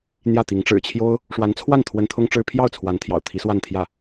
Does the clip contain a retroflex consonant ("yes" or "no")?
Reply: yes